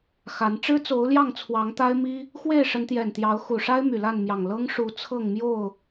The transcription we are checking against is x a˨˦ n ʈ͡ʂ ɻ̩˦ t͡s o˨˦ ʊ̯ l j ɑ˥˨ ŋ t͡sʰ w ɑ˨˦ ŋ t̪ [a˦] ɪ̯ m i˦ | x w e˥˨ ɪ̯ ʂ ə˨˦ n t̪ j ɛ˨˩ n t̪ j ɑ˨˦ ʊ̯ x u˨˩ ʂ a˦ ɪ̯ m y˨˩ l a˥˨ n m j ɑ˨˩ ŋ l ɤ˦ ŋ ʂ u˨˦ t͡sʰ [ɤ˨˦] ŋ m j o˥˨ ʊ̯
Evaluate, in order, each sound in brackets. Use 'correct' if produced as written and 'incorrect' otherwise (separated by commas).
correct, incorrect